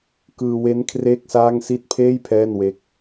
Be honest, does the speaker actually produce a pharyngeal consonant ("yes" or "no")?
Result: no